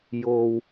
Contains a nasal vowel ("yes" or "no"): no